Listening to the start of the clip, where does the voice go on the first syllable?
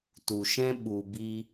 low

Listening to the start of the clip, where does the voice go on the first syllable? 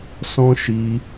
high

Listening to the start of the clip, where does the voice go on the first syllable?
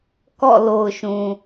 falling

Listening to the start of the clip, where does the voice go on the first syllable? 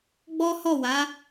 high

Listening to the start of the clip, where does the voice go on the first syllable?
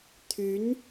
rising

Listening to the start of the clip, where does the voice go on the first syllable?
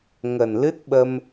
low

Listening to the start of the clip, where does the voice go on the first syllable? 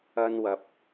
high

